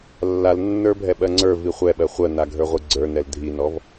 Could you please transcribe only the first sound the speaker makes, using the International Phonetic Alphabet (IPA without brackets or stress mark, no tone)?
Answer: lː